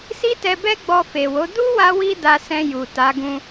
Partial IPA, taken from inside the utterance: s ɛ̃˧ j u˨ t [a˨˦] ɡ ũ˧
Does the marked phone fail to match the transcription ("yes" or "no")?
no